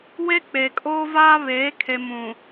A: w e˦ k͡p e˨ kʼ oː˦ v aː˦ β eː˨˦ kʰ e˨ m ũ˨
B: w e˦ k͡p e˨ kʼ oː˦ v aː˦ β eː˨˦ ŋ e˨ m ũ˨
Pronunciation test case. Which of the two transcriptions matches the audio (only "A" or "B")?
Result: A